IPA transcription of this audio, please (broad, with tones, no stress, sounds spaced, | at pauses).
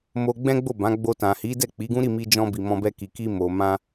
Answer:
m o˧ ɡ͡b ɛ̃˦ ɡ͡b o˦˨ b ã˨˦ ɡ͡b o˧ t ã˨ h i˨˦ d ɛ˦˨ k͡p i˨˦ ɡ ũ˦ ɾ i˦˨ m i˧ d͡ʒ ɔ̃˧ b i˨ m ɔ̃˧ b ɛ˧ k i˨ k i˧ m o˨ m ã˧